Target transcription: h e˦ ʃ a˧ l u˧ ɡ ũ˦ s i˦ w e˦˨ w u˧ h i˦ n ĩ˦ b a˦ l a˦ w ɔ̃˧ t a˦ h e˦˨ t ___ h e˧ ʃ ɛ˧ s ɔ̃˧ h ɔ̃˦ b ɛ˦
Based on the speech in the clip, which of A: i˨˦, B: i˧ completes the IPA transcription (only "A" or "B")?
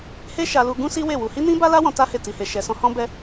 B